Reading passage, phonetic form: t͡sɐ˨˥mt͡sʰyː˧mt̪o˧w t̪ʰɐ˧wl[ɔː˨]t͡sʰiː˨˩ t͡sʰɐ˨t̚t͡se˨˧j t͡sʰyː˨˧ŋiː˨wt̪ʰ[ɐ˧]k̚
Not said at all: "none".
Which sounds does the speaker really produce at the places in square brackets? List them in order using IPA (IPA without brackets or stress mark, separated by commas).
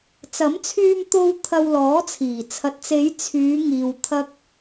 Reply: ɔː˨˥, ɐ˧